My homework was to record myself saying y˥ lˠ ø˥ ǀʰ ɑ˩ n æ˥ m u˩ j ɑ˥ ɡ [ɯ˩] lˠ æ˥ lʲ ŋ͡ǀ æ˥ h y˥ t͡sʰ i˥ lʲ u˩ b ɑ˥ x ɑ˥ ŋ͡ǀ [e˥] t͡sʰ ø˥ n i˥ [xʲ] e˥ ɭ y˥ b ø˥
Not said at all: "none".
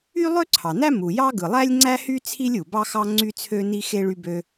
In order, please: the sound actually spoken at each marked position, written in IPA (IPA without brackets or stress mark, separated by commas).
ɯ˩, y˥, x